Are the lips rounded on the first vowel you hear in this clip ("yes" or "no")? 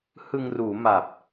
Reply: no